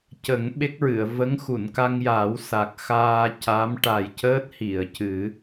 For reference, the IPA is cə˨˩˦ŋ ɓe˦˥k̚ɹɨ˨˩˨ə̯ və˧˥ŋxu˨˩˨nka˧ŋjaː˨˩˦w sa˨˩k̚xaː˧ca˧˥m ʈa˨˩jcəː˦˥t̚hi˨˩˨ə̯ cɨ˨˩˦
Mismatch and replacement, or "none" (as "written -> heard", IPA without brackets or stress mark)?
none